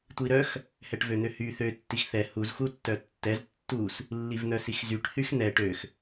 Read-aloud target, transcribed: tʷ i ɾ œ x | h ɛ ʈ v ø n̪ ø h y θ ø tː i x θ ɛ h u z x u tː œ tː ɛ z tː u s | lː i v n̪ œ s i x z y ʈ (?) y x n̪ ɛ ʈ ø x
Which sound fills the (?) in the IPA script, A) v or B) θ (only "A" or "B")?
B